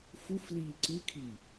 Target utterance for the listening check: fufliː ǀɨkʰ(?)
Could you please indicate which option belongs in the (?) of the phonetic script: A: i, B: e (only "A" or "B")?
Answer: A